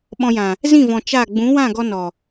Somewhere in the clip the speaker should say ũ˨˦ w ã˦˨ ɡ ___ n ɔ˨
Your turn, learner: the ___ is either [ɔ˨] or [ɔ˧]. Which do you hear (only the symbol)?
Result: ɔ˧